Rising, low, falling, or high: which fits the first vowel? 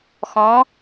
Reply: rising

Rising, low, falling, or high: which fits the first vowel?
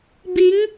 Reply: rising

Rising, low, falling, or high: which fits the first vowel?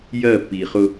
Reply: falling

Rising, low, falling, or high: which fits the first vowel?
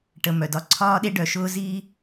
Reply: low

